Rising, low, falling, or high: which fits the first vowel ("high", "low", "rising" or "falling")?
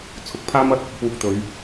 rising